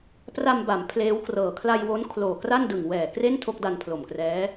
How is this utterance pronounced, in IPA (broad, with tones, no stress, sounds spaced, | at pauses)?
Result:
p r a˧ m b a˩˦ m pʰ l eː˦˥ w k r ɤː˨˩ kʰ l a˧ j w o˦˥ n kʰ l oː˨˩ k r a˥˩ n d ɯ˨˩ ŋ w ɛː˨˩ k r e˥˩ n tʰ o˥˩ k̚ d a˧ n pʰ l o˨˩ m k r ɛː˦˥